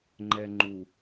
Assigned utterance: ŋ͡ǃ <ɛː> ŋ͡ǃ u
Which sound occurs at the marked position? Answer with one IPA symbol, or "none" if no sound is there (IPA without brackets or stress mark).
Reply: ɛ